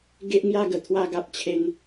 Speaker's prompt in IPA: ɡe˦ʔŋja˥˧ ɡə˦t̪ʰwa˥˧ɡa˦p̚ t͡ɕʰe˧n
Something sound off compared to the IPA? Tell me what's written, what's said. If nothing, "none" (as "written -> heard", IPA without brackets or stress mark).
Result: ə˦ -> ə˨˩